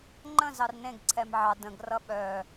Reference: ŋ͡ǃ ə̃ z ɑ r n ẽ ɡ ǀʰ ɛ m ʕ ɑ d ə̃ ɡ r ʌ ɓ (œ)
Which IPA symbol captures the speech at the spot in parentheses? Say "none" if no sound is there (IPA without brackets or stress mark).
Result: œ